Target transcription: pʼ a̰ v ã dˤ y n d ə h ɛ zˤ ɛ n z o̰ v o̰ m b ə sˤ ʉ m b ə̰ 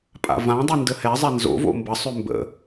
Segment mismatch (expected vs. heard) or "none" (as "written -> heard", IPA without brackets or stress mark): none